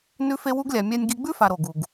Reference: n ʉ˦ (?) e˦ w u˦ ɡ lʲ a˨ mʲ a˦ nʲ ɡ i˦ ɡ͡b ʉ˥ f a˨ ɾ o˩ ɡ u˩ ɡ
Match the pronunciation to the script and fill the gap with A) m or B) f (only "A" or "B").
B